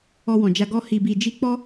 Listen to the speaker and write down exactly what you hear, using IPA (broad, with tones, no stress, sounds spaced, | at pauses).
ɔ˧ w ɔ̃˨ d͡ʒ a˧ ɡ ɔ˧ h i˨ b i˨ d͡ʒ i˧ k͡p ɔ˦